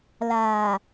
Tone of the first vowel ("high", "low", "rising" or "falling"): low